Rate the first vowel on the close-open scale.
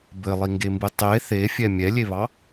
mid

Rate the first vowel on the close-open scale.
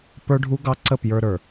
mid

